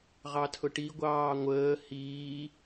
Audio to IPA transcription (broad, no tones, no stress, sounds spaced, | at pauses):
ʁ ɑ tʰ ʊ ʈ i ɡʷ ɑː ŋʷ əː h iː